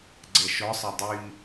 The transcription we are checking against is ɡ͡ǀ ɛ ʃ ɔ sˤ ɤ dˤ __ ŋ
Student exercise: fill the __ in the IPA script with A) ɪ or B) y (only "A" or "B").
B